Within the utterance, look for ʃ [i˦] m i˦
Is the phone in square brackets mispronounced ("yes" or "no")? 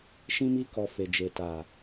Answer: yes